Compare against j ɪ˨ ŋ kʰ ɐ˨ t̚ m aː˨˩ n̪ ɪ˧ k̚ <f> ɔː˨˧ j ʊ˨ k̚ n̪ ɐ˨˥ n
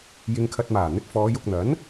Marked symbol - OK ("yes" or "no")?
yes